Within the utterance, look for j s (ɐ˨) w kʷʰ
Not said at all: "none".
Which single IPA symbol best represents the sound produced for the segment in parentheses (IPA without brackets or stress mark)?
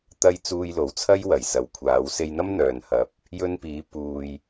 ɐ˨